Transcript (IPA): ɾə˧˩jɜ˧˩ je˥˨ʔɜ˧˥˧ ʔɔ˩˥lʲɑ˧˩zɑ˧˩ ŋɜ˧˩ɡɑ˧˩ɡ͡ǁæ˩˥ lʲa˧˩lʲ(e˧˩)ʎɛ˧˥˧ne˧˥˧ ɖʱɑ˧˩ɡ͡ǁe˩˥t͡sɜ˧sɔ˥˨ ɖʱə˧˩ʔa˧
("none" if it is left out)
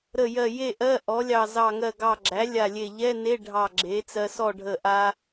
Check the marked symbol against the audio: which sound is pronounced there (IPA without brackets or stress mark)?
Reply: e˧˩